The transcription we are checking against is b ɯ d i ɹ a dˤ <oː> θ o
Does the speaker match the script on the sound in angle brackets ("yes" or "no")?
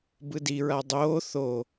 yes